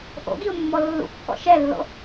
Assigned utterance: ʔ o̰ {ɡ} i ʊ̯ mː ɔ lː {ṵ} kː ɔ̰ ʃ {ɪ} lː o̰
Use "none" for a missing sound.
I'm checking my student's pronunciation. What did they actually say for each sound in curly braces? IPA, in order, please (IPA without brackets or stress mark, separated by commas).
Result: ɡ, ṵ, ɛ